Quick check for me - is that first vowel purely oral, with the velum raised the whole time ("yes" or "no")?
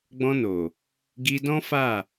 no